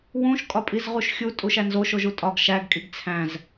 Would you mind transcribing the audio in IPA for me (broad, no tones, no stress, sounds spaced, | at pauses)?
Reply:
w ũ ʃ kʼ ɒ pʼ i z ʁ u ʃ xʲ u tʼ u ʃ æ n z o ʃ o ʒ u tʼ ɒ ɡ ʃ æ ɡ kʼ i ɡ t͡sʰ æ̃ z